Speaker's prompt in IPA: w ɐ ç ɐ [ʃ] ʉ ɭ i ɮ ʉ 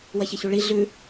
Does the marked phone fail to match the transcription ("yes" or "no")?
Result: yes